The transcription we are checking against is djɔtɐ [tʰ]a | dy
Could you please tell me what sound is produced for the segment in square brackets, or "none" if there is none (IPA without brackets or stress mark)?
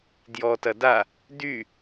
d